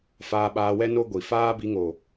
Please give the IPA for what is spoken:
faː˧ɓaː˧wɛ˦ no˦ɡʷi˨ faː˦bi˧ŋo˨

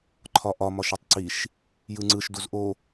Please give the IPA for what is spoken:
ǃʰɒʔɒ mɒʃitˤǀiʃ | jɯŋ͡ǀɯʃ duzʔo

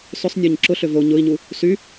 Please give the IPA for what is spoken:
sʏsˤ nʲɔɲǁʊɬʏ vo ɲʊi̯ɲu | sy

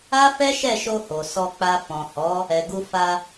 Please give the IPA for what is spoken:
a˦fɛ˦ʃɛ˦˨ʃo˧ ho˨sɔ˧ k͡pa˧fɔ̃˨ hɔ˨˦ | ɛ˨ɡu˧fa˧

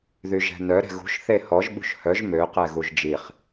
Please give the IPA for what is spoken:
ðyʒɛ̤nœ ɾɛ̤ɣṳʃ θehɔʒ ɓṳʃhœʒ mø qɛɣuʒd͡ʒiχ

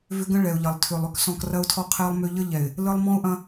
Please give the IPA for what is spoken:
vʏ˦ɡə̃˦ ɭɛ˨ʊ̯ʎɐ˨lˠtʰʏ˨lˠ ʏ˦ksɔ̃˨k rɐ˦ʊ̯tʰɔ˦qʰɛ˦lˠmʏ˦ ʎə˦ ʎɛ˨ɪ̯ | lə˦lˠ mɔ̃˦ʊ̯ʔɐ̃˦

